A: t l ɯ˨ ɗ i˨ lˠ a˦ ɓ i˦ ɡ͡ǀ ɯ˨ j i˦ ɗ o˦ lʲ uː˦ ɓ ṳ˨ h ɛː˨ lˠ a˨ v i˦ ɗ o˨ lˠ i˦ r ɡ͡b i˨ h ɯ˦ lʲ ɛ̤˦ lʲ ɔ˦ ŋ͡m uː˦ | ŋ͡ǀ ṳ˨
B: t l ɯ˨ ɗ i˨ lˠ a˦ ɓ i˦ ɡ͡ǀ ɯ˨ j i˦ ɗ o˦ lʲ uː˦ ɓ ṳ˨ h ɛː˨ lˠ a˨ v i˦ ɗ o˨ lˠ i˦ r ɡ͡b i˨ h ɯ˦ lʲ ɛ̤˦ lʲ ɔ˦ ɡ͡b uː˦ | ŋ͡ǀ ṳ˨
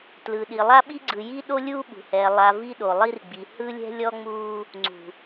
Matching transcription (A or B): A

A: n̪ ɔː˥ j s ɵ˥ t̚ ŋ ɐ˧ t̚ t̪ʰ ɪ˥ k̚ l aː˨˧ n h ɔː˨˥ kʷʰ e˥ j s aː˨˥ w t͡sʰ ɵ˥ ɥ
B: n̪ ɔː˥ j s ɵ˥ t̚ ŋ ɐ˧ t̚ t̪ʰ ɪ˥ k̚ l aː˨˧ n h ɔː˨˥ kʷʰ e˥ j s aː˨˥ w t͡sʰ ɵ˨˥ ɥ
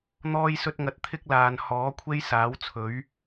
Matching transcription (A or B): B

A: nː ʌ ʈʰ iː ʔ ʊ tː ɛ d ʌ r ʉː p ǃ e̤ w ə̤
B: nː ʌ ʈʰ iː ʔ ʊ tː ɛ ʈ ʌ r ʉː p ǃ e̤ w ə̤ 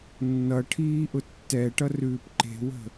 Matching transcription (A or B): B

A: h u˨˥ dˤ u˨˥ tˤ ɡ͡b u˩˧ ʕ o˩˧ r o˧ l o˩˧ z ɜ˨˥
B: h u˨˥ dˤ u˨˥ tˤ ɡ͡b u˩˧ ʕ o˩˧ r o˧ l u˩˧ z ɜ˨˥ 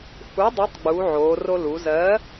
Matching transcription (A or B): B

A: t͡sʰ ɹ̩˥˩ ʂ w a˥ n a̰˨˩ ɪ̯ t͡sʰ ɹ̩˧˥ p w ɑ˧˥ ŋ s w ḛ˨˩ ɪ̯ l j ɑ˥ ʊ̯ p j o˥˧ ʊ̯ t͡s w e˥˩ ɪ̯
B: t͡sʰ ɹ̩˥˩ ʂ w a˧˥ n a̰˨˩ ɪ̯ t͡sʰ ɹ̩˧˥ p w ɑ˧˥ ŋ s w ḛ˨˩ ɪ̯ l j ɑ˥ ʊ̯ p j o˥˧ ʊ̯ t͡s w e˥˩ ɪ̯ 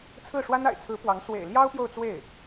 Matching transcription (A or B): A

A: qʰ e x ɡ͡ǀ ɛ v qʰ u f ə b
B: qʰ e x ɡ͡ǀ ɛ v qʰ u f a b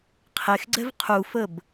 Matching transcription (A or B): A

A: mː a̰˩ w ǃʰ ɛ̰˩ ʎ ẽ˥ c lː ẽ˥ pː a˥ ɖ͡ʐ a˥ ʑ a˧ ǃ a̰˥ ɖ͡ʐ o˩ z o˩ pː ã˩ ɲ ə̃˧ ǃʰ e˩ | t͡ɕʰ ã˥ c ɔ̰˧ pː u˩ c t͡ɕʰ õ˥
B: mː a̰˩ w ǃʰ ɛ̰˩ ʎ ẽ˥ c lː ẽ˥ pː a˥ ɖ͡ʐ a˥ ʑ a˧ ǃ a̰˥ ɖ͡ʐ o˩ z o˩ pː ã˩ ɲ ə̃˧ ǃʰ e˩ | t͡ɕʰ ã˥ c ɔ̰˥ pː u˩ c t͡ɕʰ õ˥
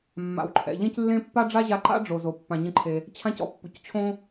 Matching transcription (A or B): A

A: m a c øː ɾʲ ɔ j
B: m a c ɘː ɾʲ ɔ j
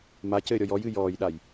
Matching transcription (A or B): B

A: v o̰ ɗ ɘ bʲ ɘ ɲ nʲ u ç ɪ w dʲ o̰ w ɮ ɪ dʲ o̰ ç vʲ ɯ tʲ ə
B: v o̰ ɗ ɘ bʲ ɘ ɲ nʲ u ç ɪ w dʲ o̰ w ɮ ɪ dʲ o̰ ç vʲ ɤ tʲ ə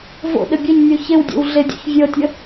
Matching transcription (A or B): B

